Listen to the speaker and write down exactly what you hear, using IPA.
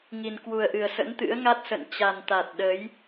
ŋ i˨˩ n k w u˨˩ ə̯ ʔ ɨ˨˩ ə̯ s ə̰˧˥ n t̪ ɨ̰˧˥ ə̯ ŋ a˦˥ t̚ s ə̰˧˨ n t͡ɕ a˨˩ n t̪ a˨˩ t̚ ɗ ə˨˦ j

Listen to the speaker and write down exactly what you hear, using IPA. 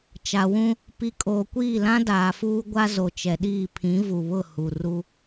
t͡ʃ a˨ w ũ˦ | p i˨ kʼ oː˨ kʷ iː˦˨ l ã˦ d aː˨ f uː˦ ɡʷ a˦ z o˨ t͡ʃ ɛ˨ ɗ iː˦˨ pʰ ĩ˨˦ v u˨ β ʊ˦˨ h u˨ r u˦

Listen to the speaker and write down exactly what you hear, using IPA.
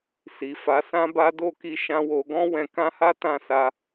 s i˨ f a˨˦ s ã˦ b a˦ d o˦˨ k i˧ ʃ ã˦ w o˧ ɡ ɔ̃˦ w ɛ̃˧ k ã˦ h a˦ t ã˦˨ s a˧

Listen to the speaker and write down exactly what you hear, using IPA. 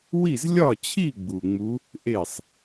w i˥˩ z lʲ ɒ˥˩ t͡ɕʰ i˥˩ ɡ͡b u˨˩ ŋ͡m u˧˥ | ʔ e˥˩ sˤ

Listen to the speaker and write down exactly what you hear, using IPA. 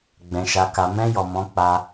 ɡ͡b ɛ̃˨ ʃ a˨ k a˨ m ɛ̃˧ j ɔ˨ m ɔ̃˨˦ k͡p a˧

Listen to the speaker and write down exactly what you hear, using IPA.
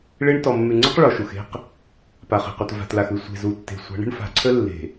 ɭ e˦ ɳ t ɔ˨ mː ʉ˨ ŋ͡ǀ ə˦ q ɭ ɔ˨ ʃ u˨ x e̤˦ q | p a˨ χ e̤˨ q u˨ t v a̤˨ t l a˨ x ʉ˨ sʷ e̤˨ z u˨ tː e̤˨ sʷ a̤˨˦ ɳ ə̤˦ ɳ f a̤˨ ǀʰ ə˦ lː e̤˨

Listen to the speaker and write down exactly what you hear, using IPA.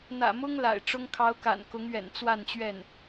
n̪ ä̰˨˩ m ʊ˥ ŋ l a̰˨˩ ɪ̯ ʈ͡ʂ ʊ˥ ŋ kʰ ɑ˧˥ ʊ̯ k a̰˨˩ n k ʊ˧˥ ŋ ɥ ɛ̰˨˩ n t͡s w a˥˧ n t͡ɕ ɥ ɛ˥˩ n

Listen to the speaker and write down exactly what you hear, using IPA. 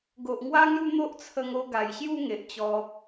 ɡ o˨ ʔ ŋ w a˦ ŋ j u˥˧ n̪ o˦ ʔ t͡sʰ ə˧ ŋ o˧ ɡ a˨˩ j ɕ j u˥˧ ŋ e˨ ʔ t͡ɕ ɔ˧

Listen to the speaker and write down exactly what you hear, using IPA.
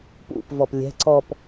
p ṵ p v ɔ p lʲ ɛ̤ ǀ ɔ p

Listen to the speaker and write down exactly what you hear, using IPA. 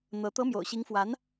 n̪ ɤ˧˥ t̪ ɤ˧˥ m j o̰˨˩ ʊ̯ ɕ i˧˥ ŋ f w a˧˥ n

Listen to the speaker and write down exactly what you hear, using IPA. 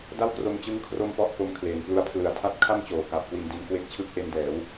d a˥˩ w k r o˧ m t͡ɕ ɯ˦˥ ŋ kʰ r o˥˩ m p ɔ˥˩ ʔ k o˧ m kʰ l eː˨˩ n p l u˧ a̯ pʰ l ɯ˨˩ a̯ tʰ a˦˥ t̚ kʰ a˥˩ m t͡ɕ oː˩˦ k a˨˩ p̚ k w i˧ n d i˧ n k w e˥˩ k̚ t͡ɕʰ ɯ˥˩ k̚ ʔ e˧ n d ɛː˩˦ w

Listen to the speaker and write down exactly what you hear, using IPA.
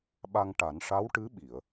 ɓ a˧ ŋ ʈ a˨˩˦ n ʂ a˧˥ w ʈ ɨ˧˥ ɓ i˨˩˨ ə̯

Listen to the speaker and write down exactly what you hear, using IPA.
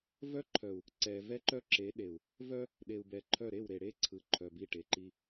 v œ˦ ǃʰ œ˨ u̯ | ǀ ɛ˨ v ɛ˦ ǃ œ˦ ǁ e˨˦ ɗ e˨ u̯ | v œ˦ | ɗ e˨ u̯ b ɛ˨ ǃʰ œ˦˨ ɾ e˦˨ w ɾ e˨ ɽ e˦ ǀʰ ɯ˨ ǃʰ œ˨ b i˦˨ ʈ e˨ ǃ i˦

